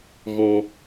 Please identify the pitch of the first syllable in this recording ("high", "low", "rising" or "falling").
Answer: high